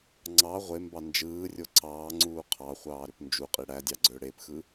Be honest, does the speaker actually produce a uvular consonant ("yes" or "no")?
yes